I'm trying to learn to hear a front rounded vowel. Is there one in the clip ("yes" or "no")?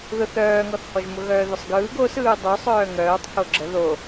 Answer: yes